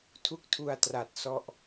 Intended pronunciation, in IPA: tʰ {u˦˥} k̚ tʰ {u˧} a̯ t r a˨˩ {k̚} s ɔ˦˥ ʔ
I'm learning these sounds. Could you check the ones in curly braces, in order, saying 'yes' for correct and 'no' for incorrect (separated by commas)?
yes, yes, no